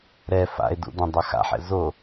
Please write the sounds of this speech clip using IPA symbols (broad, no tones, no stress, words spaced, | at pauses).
ɾɛ fa̰e̯dṵdɐ̃ dˤaxa̰ħɛ̰ zo